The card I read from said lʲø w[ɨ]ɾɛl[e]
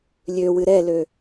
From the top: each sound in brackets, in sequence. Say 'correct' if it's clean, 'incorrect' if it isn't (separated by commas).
correct, incorrect